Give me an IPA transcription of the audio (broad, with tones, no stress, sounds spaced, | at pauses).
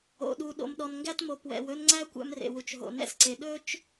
o̰˨ ɗ u˨ ɗ o̰˨ m ɗ ɔ˨ n ŋ ɡ æ˦ t m o˨ p w ɛ̰˨ w ɵ˦ n ŋ͡ǀ æ˦ kʷ æ̰˦ m r ḛ˨ w u˨ t͡ʃ ɦ o̰˨ n ɛ̰˦ s ǀ e˨ ɗ ɵ˦ t͡ʃ